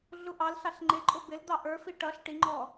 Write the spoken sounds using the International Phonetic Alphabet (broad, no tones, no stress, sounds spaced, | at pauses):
ɮ u ʔ ɑ l ɬ ɑ ɬ ŋ͡ǃ ɪ ǃʼ ʊ b ɪ l d̪ ɑ ʔ ə˞ f i ʈ ʌ ɬ ʈ i ŋ͡ǃ ɔ